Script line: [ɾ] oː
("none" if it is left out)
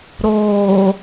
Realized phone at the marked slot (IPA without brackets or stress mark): ɾ